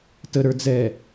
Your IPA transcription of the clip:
t ə ɾ ə˞ d͡z ɛ

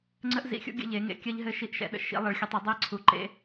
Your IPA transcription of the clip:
ŋ͡ǀ ə˦ ʔ z ḭ˨˦ xʲ ṵ˦ ɡʲ ə̰˦ ʎ e˨˦ ŋ ḛ˨˦ kʲ ɜ˦ ʎ ɦ ɘ˦ ʃ i˦ ʔ ʃ ɛ̰˨˦ ɗ ə̰˦ ʃ ḭ˨˦ lˠ e˨˦ ɭ xʲ ə˨˦ tˤ ɘ˨˦ dˤ e˦ ə̯ ǀʰ u˨˦ ǃ ḛ˦

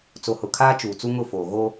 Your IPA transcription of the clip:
t͡s o˨ h ʊ˨ kʰ aː˦ t͡ʃ uː˨ t͡s u˦ ŋ ʊ˦˨ f oː˨ ɣ o˦

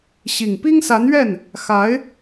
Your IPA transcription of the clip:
ɕ i˨˩ ŋ p i˥ ŋ s a˧˥ n ɥ ɛ˥˩ n | x a˧˥ ɪ̯

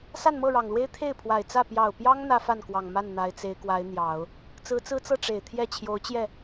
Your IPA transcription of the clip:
s a˥˧ n m ɤ˥˩ ɻ ɑ˨˩ ŋ l w e˥ ɪ̯ t̪ʰ e˥˩ ɪ̯ pʰ w a˨˩ ɪ̯ t͡s ä˥˩ p j ɑ˨˩ ʊ̯ p j ɑ˥ ŋ n̪ ä˥ f a˥˩ n k w ɑ˨˩ ŋ m a˥˩ n n̪ a˧˥ ɪ̯ t͡s e˧˥ ɪ̯ k w a˧˥ ɪ̯ n̪ j ɑ˨˩˦ ʊ̯ | t͡s ɹ̩˧˥ t͡s ɹ̩˥ t͡s ɤ˥˩ ʈ͡ʂ e˨˩ ɪ̯ t̪ʰ j ɛ˥˩ t͡ɕʰ j o˧˥ ʊ̯ t͡ɕ j ɛ˥˩

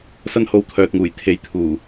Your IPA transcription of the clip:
s ɐ˥ n h o˧ w t̪ʰ œː˨ t̚ ŋ uː˨˩ j t̪ʰ e˨ j t̪ʰ uː˨˩

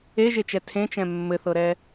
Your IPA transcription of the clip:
e ʒ e t͡ʃ ɛ tʰ ẽ t͡ʃ ɛ̃ mː ɘ θ ɤ ɾ ɛ

